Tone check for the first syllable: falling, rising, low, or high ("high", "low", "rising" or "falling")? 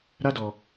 high